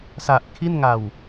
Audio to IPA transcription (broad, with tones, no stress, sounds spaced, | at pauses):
s a˨˩ ʔ kʰ i˥˩ n ŋ a˨˩ w